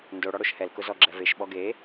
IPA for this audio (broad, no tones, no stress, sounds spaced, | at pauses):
n d o ɽ ɔ ɽ o ʃ h ɛ l k ʊ z ɔ ɡ͡ǁ ɛ v e ʃ ɓ ɔ ɡ e